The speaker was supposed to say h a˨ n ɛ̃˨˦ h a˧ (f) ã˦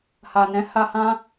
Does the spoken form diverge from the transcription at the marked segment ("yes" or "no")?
yes